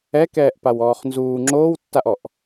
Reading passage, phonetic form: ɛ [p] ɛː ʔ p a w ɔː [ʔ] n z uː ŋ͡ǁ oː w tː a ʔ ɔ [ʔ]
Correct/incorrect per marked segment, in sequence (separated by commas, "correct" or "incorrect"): incorrect, incorrect, correct